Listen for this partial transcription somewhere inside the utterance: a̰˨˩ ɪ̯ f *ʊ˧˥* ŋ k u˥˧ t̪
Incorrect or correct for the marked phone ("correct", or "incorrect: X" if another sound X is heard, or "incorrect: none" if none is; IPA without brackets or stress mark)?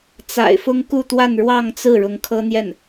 incorrect: ʊ˥